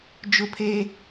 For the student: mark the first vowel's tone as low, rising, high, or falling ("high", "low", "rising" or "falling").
high